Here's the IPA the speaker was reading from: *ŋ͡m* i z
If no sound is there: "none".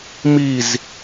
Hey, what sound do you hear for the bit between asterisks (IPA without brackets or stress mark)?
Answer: m